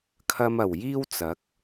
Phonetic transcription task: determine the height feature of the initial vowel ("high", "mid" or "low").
low